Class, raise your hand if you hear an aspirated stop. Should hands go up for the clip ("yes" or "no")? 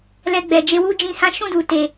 no